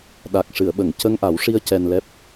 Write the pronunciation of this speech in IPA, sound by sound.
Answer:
ɗ a˨˩ k̚ ʂ ɨ˨˩˨ ə̯ ɓ ə˨˩˨ ŋ c ə˧ ŋ ʔ a˨˩˦ w ʂ i˧ ə̯ c ɛ˧ n l ɛ˦˥ p̚

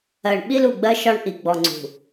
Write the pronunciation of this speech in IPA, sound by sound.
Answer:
ɜ˨ ɳ ɓ i˦ l u˨ ɡ͡b ɜ˦ ʃ ɒ˦ ɳ ʔ i˨ ɡ͡b ɔ˨ ŋ͡ǀ ṳ˨

